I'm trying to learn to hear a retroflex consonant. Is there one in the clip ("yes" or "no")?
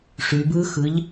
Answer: yes